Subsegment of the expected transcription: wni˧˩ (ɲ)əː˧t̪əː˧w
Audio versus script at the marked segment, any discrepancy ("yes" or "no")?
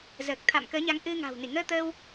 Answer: yes